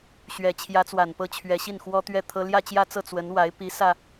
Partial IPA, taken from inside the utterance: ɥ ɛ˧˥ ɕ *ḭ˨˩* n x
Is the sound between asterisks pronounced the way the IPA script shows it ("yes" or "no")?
no